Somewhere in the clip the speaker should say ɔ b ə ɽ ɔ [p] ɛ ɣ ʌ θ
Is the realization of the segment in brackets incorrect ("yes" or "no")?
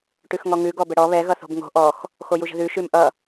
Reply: yes